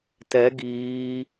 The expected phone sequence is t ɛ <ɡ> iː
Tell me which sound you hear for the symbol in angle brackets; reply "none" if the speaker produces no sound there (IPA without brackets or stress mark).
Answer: ɡ